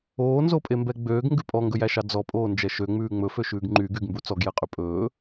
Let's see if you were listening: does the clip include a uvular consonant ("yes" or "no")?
yes